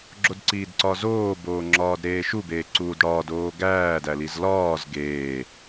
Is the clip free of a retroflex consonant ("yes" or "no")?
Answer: no